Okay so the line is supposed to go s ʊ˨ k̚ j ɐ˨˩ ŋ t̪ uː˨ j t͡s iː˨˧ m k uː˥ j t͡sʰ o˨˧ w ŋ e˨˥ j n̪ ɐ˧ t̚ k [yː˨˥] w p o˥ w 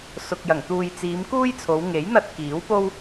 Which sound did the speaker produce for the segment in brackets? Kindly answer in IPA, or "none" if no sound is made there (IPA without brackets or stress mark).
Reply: iː˨˥